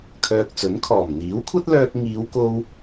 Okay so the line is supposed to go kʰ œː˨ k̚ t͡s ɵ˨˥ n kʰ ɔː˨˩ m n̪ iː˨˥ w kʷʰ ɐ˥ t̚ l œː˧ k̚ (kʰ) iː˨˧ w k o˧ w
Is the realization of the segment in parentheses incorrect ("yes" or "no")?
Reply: yes